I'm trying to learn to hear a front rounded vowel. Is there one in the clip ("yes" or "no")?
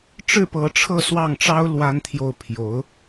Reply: no